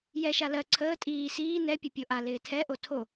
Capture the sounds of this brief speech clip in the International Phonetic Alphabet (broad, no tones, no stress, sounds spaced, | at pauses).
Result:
j ɛ ʃ a l ɜ ǀʰ əː tʼ iː s iː n ɛ pʲ ə pʲ o ʔ a l ɪː tʰ ɛ ʔ o tʰ o